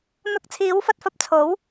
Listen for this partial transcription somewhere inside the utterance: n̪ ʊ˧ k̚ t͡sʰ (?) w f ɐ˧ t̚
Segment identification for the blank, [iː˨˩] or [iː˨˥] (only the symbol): iː˨˥